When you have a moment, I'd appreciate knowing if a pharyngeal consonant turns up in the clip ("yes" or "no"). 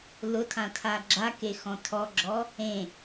no